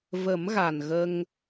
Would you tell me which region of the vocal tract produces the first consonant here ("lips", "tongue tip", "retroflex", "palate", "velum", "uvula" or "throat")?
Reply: lips